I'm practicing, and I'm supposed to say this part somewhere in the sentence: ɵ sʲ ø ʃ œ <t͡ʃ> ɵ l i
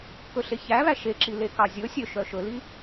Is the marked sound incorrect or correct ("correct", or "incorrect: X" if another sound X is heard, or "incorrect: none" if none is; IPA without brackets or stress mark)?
incorrect: ʃ